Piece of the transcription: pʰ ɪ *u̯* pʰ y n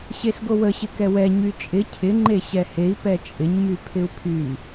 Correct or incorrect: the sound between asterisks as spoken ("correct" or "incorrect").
correct